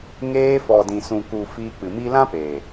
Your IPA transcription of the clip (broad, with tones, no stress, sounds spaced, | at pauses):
ŋ eː˧ f ɔ˨ d ĩ˨ s ũ˨ k u˨ f iː˧ k͡p ɨ˨ m i˦ l ã˦ p e˨